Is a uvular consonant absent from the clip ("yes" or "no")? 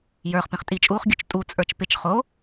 no